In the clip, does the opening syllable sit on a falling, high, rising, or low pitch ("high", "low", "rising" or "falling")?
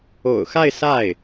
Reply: low